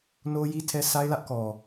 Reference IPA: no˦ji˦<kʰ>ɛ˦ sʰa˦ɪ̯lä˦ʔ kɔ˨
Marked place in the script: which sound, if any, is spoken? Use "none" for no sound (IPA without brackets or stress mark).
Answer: tʰ